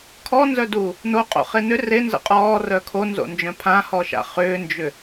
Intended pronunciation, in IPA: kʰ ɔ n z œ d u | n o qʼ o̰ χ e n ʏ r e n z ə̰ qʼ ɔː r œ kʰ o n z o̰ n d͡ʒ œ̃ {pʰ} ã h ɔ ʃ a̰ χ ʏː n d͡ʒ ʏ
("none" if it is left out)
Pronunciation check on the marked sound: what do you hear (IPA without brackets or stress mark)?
pʰ